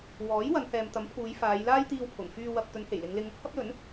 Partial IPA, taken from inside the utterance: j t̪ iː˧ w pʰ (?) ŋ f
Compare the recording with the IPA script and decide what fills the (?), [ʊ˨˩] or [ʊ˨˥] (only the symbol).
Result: ʊ˨˩